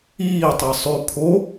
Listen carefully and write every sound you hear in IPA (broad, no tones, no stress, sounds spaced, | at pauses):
iː tˤ ə˞ sˤ ʉ pʰ o